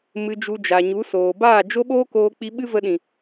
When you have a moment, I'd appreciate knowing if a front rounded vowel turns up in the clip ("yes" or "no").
no